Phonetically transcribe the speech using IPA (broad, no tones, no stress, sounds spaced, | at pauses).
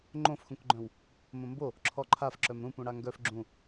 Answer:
ŋ͡ǃ õ f x ũ k ɡ͡ǃ œ̃ w | m õ m b o | ǁʰ ɔ ǃʰ a f ǁ œ m ɾ ũ p ũ ɽ a ŋ ɡ œ f ɡ͡ǁ ũ